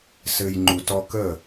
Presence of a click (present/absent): present